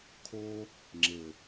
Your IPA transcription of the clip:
kʰ oː˧ | ŋ͡ǁ e˨

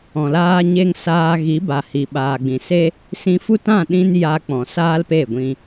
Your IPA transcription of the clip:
ɔ̃˨ l aː˦ ɲ e˦ ŋ s aː˧ ɣ i˨˦ b a˨ h i˨ ɓ aː˨ ɡ͡b ĩ˨ s e˦ | s ĩ˧ f u˦ t ã˦˨ ɗ ĩ˦ n j a˦ k͡p ɔ̃˨ s aː˦ l p e˦˨ ɡʷ ĩ˧

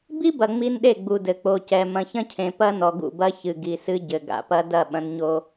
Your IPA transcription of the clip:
b i˦ b ɐ˨ ŋ͡m i˦ n ɗ e˦˨ ɡ͡b u˨ d ɘ˨ k͡p o˨ c ɛ˨ m ɐ̃˨ ç ɐ̃˦ cʰ ẽ˨ p ɐ˦ n ɔ˨ ɡ ṵ˦˨ b ɐ˦ ç ɨ˨ ɡ i˨ s ɨ˦ ɟ ɘ˨ ɡ a̰˨ p ɐ˦ d ɐ˦˨ ɓ ɐ̃˦ n ɲ o˦

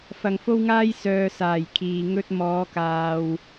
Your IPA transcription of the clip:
f ɐ˨ ŋ f o˥ w ŋ aː˥ j s œː˨ s aː˨˩ j kʰ iː˨ ŋ ɵ˥ t̚ m ɔː˨˧ k aː˨ w

